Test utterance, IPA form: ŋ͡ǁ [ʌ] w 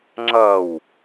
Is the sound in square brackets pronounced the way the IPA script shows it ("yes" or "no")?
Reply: yes